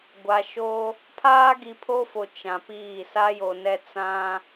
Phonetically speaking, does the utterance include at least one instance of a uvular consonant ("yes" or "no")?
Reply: no